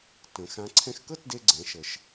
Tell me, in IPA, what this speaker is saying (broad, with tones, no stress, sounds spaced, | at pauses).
t ə̃˩˧ x ã˧˥ ǀʰ ɛ̃˧ x k ɤ˥ t d e˧ ɡ͡ǀ ɛ̃˩˧ ʃ ə˩ ʃ